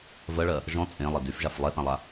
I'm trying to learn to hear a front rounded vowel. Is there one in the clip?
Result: yes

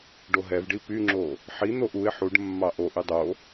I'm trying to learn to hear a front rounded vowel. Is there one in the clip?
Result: yes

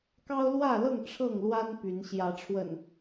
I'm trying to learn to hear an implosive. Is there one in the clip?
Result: no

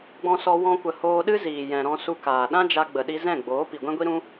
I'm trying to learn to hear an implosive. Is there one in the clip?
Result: yes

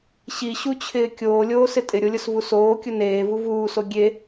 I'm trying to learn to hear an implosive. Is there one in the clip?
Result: no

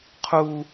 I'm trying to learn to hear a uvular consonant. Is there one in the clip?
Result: yes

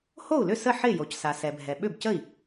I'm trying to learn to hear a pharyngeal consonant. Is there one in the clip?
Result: yes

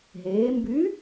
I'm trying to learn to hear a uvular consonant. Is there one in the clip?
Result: no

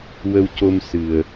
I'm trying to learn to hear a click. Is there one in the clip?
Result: no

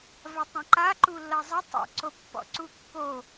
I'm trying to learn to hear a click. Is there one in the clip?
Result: yes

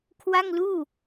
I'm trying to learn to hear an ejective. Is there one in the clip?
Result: no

